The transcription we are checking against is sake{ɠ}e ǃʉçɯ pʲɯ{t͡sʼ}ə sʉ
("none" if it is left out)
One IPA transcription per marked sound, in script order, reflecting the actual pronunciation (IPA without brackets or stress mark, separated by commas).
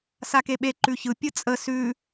ɓ, t͡sʼ